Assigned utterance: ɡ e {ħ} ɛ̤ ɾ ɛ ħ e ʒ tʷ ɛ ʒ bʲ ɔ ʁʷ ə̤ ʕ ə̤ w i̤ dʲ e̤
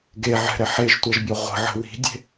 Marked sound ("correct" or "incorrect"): incorrect